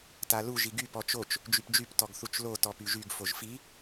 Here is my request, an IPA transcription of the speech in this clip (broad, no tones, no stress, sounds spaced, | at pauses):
t a l u ʒ i ɡ y p ɔ t͡ʃ o t͡ʃ | d͡ʒ y p d͡ʒ y p t ɔ ɡ θ u t͡ʃ l o t ɔ p y ʒ y ɡ f o ʒ f i